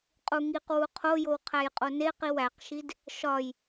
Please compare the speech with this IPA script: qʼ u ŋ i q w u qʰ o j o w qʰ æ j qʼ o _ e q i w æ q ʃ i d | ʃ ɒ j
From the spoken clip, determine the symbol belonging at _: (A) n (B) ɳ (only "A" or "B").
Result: A